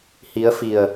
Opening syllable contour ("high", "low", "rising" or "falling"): rising